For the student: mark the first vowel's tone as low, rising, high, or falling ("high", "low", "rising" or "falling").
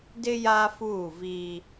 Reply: high